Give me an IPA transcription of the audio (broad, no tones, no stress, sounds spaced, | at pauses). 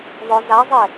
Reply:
ðˤ ʊ z a zˤ e